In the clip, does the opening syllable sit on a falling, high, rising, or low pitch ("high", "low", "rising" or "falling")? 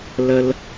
low